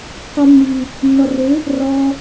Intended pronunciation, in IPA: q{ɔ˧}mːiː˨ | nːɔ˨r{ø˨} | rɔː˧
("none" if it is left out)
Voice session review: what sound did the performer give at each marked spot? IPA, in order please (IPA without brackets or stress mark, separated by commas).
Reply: ɔ˧, ø˨˦